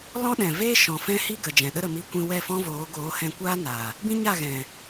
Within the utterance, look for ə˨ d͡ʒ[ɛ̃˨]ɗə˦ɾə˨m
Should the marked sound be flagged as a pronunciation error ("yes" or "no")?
no